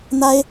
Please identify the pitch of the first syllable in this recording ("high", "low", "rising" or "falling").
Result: high